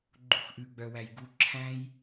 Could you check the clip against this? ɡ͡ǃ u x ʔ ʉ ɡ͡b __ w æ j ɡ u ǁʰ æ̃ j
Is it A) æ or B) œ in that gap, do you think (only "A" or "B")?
B